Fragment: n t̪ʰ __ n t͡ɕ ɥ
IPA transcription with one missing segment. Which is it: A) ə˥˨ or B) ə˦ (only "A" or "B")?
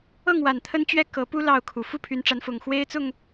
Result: B